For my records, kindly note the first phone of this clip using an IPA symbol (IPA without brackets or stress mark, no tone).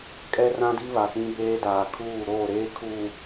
kʼ